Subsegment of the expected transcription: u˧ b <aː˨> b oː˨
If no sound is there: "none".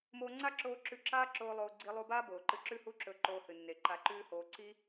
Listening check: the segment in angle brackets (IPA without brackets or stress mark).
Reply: aː˦